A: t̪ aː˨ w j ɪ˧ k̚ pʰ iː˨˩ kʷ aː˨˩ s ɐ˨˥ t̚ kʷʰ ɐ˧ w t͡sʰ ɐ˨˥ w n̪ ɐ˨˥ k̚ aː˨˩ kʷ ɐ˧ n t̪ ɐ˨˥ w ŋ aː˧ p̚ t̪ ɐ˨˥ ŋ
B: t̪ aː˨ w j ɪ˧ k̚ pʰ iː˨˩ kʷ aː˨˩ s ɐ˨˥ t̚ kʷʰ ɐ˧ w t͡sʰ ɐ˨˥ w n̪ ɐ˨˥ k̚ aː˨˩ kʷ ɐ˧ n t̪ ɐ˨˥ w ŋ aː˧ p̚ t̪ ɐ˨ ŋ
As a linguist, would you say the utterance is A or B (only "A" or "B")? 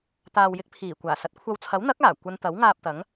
A